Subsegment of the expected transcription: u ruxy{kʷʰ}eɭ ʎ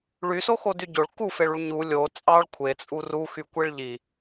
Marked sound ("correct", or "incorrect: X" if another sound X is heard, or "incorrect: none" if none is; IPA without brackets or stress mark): incorrect: kʷ